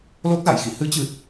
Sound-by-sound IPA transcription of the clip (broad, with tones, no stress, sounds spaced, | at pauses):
l o˦˥ k̚ z a̰˧˨ j x ḭ˧˨ h ɨ˨˦ t͡ɕ ɨ˨˩ t̚